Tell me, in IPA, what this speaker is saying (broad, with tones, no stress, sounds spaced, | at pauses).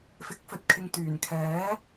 f ɪ˨˥ k̚ f ɵ˨ t̚ kʰ ɪ˨ ŋ t̪ yː˨˩ n kʰ ɛː˨˥